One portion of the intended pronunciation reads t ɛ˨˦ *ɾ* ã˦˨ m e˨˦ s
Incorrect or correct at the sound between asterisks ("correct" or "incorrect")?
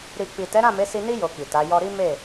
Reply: correct